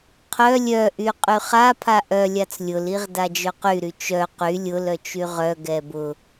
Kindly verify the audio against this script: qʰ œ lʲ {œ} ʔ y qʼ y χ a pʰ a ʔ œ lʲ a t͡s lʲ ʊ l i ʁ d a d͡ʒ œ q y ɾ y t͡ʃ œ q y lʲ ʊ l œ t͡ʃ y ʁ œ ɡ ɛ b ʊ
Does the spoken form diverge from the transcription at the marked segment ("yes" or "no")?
no